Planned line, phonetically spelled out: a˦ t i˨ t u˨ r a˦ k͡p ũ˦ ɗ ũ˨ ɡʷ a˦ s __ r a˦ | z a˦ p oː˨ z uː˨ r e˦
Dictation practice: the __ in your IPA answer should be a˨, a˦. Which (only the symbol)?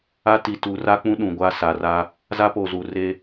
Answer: a˨